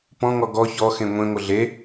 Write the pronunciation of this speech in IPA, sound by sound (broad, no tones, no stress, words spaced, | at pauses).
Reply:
pɔ̃ŋɔ ɡɔ çɔxẽ ŋʷẽŋʷə ɮe